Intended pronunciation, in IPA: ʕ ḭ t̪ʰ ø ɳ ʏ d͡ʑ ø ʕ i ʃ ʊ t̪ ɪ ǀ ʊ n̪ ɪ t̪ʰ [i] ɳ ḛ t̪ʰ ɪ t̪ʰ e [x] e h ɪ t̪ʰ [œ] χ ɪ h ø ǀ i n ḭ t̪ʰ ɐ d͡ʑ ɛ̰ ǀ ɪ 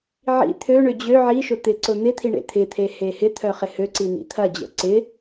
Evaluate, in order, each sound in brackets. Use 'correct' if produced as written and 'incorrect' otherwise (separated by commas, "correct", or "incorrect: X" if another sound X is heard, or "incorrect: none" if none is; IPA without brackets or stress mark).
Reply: correct, incorrect: h, correct